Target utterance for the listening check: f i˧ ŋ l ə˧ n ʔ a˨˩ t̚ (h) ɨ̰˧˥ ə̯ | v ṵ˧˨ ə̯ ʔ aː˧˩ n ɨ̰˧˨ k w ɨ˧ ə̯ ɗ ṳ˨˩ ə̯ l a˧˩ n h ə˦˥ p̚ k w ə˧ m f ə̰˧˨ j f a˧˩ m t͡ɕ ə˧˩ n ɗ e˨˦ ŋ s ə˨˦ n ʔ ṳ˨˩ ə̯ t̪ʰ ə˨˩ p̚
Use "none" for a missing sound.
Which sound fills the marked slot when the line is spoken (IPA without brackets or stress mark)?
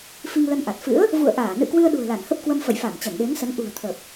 f